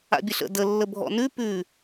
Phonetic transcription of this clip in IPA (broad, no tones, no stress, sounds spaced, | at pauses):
a̰ bʲ ə ɬ ə̰ d ə lː ə bʱ ɔ̰ n ʉ p ʉ